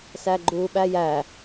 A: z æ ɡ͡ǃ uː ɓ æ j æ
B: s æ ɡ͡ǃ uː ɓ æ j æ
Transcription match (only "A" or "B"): B